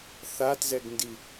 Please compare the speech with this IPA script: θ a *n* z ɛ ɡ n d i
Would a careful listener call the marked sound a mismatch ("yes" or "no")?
yes